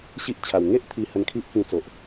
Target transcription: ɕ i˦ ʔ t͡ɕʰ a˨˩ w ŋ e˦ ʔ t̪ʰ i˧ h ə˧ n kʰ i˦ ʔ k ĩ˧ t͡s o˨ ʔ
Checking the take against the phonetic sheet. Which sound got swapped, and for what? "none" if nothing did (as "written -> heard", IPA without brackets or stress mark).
none